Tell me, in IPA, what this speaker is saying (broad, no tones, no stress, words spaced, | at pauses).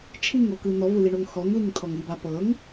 t͡ʃʰiŋokɯ n̪ɔvɯliɳoŋ xɔŋliŋt̪ʰɔŋ iba pɤŋ